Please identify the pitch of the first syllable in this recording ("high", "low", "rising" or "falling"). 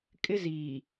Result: high